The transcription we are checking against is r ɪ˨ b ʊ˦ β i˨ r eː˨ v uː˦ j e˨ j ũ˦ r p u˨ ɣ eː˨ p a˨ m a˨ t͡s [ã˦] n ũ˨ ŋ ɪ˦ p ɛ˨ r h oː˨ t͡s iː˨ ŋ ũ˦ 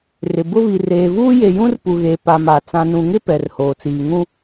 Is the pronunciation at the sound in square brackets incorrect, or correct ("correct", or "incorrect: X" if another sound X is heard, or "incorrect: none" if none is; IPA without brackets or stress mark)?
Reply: incorrect: ã˨